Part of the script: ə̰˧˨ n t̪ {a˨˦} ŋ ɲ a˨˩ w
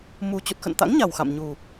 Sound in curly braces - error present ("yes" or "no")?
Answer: yes